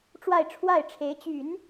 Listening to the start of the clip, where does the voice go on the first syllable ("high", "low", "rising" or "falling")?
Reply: falling